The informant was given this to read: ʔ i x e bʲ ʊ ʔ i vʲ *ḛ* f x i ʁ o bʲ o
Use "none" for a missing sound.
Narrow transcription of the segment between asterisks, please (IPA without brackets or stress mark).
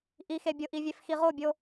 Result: e